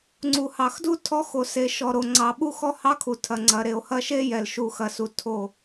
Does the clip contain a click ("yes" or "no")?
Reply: yes